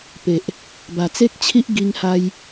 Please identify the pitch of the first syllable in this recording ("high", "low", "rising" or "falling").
low